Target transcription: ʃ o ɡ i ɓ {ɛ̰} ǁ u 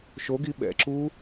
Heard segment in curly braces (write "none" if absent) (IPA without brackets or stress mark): ɛ̰